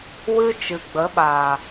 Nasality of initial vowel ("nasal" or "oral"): oral